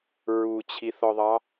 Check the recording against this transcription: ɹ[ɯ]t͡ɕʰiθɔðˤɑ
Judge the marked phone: incorrect: u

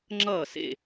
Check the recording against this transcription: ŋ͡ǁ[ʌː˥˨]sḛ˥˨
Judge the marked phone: correct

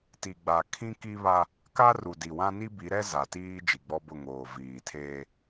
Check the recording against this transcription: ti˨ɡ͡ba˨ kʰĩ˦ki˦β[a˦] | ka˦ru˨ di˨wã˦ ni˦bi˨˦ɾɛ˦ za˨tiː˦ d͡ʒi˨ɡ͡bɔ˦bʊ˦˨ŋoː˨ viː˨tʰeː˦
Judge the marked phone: correct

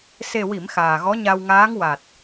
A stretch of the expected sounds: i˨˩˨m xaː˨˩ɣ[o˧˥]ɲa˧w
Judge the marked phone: incorrect: ɔ˧˥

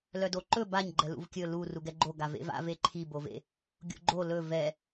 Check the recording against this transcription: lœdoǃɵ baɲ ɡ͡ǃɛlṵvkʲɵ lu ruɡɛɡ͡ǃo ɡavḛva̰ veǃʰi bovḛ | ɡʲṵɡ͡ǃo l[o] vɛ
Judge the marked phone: incorrect: ɵ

